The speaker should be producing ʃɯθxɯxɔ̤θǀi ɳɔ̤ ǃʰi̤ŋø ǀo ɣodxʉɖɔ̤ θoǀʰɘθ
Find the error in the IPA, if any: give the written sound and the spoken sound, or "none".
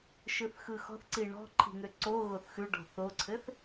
d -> θ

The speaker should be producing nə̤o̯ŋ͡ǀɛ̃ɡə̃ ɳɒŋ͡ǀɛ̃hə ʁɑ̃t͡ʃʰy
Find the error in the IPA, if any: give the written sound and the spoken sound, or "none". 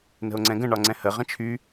ɑ̃ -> ə̃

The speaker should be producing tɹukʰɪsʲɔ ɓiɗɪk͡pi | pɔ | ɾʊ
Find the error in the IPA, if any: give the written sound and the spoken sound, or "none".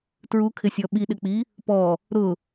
none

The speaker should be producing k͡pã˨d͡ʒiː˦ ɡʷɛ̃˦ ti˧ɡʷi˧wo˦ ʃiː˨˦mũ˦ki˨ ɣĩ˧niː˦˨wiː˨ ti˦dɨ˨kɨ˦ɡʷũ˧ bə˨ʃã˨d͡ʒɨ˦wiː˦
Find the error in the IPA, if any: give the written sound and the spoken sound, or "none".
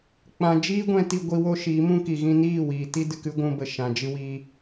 none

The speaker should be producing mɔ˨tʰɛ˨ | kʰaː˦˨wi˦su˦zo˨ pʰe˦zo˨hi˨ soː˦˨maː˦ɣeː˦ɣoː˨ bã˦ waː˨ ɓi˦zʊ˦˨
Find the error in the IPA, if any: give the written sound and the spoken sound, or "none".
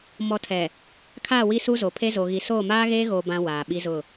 h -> ɣ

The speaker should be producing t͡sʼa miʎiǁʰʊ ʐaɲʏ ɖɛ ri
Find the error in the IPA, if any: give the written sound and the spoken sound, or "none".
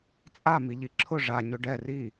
none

